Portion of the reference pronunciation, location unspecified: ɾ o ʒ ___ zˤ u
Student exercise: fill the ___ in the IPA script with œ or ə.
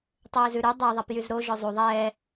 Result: œ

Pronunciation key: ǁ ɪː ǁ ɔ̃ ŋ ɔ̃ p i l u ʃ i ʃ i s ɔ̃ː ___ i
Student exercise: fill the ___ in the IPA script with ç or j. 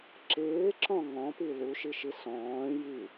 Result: j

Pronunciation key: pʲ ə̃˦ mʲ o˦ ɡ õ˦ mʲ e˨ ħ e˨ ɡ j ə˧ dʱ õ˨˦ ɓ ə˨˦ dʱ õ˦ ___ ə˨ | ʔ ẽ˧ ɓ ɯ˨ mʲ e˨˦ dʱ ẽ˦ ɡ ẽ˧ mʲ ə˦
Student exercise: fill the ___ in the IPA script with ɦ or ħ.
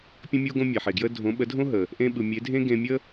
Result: ɦ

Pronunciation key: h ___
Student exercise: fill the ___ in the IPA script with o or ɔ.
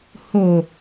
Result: o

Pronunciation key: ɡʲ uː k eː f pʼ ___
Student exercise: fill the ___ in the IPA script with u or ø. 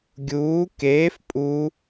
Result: u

